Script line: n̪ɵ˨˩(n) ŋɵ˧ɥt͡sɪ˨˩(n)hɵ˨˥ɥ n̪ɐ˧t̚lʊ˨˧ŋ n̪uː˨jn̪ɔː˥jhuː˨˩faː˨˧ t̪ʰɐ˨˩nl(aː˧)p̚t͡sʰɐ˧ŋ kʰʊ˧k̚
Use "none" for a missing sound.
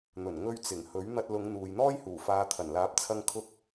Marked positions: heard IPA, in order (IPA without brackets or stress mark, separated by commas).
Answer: n, ŋ, aː˨˥